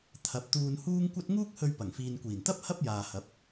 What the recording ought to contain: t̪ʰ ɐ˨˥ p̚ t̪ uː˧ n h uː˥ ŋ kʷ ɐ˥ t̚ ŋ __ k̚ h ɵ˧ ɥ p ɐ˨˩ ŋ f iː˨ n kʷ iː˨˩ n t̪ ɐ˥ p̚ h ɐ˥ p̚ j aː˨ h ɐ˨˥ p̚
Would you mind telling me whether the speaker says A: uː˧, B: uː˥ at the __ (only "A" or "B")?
B